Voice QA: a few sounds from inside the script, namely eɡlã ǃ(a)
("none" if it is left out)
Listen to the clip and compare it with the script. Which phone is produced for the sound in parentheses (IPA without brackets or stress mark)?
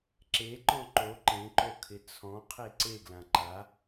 a